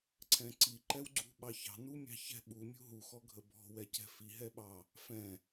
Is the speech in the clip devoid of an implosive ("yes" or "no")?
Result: no